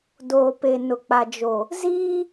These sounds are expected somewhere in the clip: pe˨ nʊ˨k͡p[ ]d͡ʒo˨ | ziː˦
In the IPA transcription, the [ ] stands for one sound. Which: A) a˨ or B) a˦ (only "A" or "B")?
A